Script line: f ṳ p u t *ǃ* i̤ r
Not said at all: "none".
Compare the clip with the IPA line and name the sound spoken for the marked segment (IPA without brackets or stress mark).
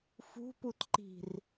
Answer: ǃ